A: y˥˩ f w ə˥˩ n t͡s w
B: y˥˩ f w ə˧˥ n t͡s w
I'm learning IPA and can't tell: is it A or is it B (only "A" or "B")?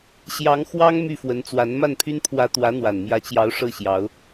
B